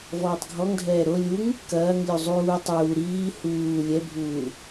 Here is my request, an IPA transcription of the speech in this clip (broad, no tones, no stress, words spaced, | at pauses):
vɔːtˤɡʱɔŋdʱɛː ɾo lʲuŋ | kɐːŋ lʲuzˤuː tˤuː ɾiː huː lʲɛbʱuː